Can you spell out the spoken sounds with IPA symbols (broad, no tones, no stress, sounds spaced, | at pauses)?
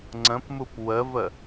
ŋ͡ǀ ə̃ p m u p w ə v ə